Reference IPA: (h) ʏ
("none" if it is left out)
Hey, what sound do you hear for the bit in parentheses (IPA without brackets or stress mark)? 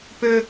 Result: p